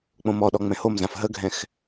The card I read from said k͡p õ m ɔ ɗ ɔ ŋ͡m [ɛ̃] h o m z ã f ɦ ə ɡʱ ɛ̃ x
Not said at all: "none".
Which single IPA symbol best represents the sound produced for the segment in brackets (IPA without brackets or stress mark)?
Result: ɛ̃